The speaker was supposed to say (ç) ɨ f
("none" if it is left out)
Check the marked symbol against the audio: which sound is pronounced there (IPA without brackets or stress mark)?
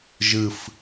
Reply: ʒ